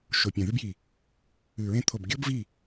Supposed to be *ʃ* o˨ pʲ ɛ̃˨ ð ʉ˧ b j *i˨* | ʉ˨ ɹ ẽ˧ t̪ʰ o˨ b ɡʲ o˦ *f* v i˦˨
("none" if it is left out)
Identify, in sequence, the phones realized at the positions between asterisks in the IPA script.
ʃ, i˨, b

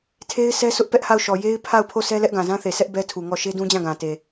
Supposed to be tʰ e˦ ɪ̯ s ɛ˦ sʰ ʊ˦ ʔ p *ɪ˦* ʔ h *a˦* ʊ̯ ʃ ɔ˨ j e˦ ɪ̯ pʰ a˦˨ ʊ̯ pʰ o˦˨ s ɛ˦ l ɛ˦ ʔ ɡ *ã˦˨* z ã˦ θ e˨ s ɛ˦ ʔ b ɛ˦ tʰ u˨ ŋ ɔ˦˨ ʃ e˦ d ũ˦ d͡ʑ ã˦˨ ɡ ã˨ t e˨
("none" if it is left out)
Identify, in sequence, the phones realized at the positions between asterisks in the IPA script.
ɛ˦, a˦˨, ã˨

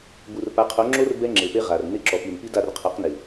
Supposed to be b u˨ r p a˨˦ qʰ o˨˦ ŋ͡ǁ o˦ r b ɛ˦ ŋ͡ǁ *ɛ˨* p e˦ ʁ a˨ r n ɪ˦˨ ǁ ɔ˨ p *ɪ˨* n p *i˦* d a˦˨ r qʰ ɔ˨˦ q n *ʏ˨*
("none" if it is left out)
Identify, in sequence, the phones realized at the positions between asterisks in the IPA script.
e˨, i˨, i˦, ɪ˨

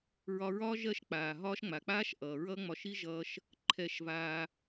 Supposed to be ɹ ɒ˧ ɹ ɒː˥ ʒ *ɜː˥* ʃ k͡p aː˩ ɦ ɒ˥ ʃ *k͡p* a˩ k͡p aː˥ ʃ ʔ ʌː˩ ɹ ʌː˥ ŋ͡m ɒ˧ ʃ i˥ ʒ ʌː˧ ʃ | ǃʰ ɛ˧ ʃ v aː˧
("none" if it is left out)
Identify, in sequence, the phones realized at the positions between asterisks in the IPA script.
ɜː˥, ŋ͡m

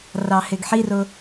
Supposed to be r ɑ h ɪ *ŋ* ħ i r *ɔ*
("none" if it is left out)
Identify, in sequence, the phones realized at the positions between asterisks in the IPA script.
ɡ, ʊ

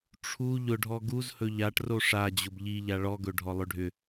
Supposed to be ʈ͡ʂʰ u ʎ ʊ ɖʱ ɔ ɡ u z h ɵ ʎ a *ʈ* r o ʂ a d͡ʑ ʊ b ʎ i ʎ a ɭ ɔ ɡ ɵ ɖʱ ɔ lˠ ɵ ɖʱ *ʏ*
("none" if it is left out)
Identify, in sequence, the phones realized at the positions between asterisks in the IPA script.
ʈ, ʏ

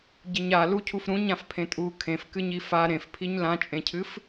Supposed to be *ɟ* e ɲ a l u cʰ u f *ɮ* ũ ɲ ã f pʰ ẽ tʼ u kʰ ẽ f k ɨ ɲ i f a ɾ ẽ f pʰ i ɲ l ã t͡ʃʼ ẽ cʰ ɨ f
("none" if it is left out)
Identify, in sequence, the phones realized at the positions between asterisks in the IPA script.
ɟ, ɾ

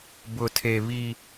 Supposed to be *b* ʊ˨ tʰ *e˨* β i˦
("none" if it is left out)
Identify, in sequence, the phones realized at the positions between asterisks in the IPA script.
b, e˨

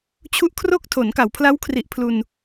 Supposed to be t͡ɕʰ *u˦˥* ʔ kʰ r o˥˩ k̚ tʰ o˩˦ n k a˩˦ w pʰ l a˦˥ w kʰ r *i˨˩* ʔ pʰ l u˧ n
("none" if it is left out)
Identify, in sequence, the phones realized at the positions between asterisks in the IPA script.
u˦˥, i˨˩

